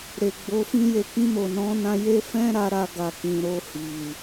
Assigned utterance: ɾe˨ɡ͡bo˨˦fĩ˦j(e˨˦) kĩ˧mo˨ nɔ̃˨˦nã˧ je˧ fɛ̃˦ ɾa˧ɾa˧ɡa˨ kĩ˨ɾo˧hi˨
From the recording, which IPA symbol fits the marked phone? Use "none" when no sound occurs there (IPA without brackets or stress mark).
e˧